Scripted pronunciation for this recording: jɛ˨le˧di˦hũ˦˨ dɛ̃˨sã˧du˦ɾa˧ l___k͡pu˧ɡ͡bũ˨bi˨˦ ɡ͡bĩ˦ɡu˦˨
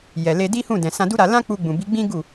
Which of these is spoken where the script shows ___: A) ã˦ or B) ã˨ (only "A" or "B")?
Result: A